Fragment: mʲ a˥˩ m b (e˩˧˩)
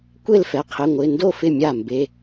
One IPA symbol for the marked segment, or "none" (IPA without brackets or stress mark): e˩˧˩